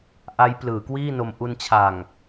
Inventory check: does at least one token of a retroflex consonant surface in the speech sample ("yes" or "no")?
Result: no